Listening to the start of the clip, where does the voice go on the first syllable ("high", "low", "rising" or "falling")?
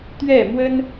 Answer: falling